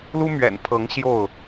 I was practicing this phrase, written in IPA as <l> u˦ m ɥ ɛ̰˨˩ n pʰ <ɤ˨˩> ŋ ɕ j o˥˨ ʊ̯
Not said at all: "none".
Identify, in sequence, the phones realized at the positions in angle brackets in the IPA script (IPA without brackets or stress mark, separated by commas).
l, ɤ˨˦